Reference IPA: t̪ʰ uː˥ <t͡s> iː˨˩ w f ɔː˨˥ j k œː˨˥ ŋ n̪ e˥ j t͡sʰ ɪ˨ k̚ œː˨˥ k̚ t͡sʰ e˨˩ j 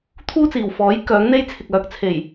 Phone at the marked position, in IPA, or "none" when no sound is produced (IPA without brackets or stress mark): t͡s